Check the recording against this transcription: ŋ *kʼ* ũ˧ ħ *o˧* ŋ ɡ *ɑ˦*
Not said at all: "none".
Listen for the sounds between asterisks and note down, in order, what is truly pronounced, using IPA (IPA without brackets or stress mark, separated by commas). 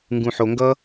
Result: ɡ, o˧, ʌ˦